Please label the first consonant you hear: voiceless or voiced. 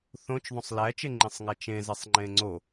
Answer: voiceless